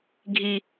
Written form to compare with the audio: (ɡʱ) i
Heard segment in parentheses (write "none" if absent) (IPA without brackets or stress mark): ɡʱ